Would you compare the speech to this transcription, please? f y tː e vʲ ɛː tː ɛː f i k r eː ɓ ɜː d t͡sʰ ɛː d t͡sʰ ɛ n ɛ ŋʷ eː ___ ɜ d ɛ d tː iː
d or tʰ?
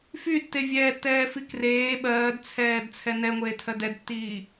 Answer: tʰ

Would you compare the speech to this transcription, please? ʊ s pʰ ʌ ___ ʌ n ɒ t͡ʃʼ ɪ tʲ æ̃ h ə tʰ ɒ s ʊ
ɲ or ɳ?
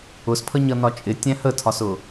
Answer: ɲ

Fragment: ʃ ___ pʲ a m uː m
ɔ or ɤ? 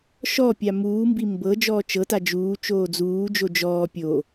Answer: ɔ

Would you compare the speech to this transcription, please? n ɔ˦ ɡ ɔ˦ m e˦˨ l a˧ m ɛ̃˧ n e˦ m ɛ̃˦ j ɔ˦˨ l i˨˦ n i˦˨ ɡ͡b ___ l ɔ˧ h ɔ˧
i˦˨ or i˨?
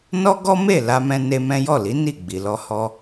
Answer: i˨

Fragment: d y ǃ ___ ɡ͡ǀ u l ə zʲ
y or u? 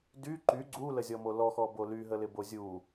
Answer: y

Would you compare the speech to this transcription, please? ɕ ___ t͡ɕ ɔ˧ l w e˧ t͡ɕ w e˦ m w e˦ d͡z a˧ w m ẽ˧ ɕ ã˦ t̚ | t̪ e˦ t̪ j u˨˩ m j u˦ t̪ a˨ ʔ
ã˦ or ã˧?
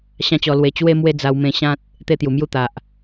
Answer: ã˦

